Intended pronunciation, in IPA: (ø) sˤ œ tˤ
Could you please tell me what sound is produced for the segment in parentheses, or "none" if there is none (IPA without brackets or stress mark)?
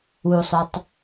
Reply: u